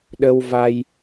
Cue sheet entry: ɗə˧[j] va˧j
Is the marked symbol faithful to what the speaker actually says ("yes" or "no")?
no